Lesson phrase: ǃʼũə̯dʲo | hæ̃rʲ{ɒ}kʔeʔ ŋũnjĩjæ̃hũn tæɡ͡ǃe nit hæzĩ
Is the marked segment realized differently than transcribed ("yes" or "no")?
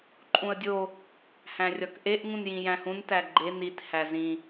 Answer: no